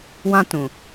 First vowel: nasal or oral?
nasal